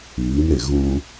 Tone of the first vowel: rising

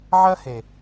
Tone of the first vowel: high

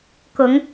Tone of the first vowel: rising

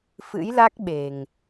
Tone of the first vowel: rising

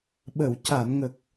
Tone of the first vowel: low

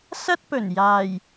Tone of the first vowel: high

